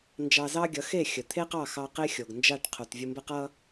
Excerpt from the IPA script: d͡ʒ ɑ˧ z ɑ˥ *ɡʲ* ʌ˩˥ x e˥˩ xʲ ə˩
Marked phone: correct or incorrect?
correct